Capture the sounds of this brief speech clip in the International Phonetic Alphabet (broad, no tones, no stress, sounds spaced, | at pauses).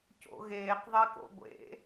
c o̰ ɣ eː q ðˤ e k o̰ ɡʷ ḛ